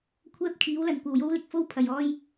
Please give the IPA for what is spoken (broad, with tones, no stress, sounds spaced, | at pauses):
kʷʰ ɛː˥ p̚ kʰ iː˨˥ w l ɐ˨˧ n kʷ ɐ˨˩ w j o˥ w l ɪ˥ k̚ f o˥ w pʰ ɐ˨ j ɔː˥ j